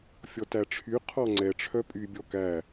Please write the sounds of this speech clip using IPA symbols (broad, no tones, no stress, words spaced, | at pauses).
fʲɔtæʈ͡ʂʰy qʰɔŋ͡ǀɛ ʈ͡ʂʰœpʼy bʲɔkæ